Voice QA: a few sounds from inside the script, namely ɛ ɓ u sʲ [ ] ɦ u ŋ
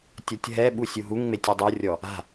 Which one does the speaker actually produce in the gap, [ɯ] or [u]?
u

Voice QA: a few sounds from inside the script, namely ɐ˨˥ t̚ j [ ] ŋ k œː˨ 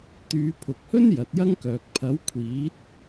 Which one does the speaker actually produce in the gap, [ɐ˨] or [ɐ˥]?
ɐ˥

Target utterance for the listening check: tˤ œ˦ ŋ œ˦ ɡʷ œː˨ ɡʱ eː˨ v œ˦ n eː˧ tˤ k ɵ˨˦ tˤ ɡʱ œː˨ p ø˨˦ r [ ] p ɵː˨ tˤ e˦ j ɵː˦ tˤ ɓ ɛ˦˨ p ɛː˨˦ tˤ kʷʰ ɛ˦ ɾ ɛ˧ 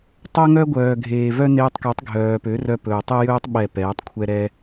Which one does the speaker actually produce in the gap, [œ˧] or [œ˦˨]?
œ˧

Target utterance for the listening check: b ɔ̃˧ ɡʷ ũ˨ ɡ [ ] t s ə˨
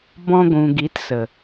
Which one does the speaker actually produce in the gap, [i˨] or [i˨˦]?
i˨˦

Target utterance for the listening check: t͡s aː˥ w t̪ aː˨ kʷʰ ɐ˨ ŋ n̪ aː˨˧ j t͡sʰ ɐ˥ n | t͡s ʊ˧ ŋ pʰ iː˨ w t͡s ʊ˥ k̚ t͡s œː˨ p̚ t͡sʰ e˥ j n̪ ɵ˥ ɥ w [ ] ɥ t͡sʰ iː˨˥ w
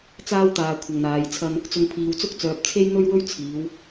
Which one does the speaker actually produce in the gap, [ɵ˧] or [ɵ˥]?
ɵ˥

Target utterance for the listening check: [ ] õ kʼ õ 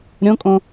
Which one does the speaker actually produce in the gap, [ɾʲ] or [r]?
ɾʲ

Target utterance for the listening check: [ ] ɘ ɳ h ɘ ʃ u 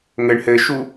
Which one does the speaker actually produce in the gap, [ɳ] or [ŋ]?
ŋ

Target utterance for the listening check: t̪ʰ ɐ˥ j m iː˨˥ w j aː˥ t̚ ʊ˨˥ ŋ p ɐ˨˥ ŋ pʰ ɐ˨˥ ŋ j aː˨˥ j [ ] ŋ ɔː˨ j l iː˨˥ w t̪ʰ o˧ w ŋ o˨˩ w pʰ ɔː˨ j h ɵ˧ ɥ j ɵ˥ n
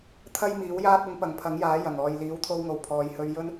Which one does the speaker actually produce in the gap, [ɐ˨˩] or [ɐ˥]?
ɐ˨˩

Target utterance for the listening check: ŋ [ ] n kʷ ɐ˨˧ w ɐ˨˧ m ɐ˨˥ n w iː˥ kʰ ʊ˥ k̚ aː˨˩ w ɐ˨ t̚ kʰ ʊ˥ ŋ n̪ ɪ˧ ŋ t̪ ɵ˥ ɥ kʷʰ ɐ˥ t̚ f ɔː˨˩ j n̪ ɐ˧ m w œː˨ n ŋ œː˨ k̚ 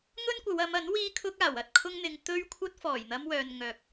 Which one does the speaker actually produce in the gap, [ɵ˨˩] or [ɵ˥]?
ɵ˥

